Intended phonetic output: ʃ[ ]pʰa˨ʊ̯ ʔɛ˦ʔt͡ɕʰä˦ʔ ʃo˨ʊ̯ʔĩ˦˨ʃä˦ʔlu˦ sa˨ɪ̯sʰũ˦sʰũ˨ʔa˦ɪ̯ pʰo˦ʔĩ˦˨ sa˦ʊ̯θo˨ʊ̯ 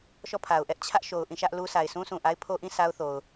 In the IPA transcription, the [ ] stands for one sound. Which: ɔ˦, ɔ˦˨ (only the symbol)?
ɔ˦˨